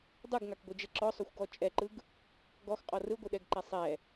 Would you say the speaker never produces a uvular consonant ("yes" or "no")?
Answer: no